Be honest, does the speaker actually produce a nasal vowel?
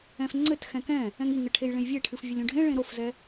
yes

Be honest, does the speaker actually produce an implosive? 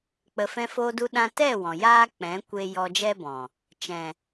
yes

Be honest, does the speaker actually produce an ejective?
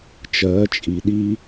yes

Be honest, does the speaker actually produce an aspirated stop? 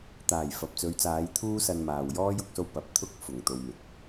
yes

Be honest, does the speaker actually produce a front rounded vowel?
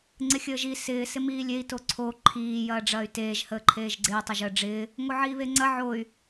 yes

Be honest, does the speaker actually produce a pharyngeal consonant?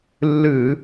no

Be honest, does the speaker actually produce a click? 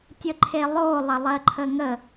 yes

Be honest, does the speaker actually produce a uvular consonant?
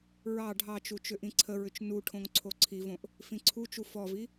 no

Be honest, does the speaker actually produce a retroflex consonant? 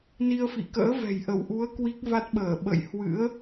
no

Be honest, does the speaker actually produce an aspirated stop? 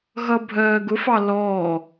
no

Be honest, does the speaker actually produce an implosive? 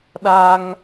yes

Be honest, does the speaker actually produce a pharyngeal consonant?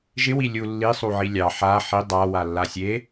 yes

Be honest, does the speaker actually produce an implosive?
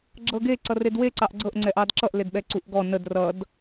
yes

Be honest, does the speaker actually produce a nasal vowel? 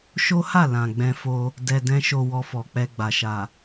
yes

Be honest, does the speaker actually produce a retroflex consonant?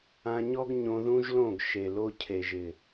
no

